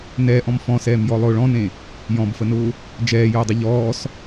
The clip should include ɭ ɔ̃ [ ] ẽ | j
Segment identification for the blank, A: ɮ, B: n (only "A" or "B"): B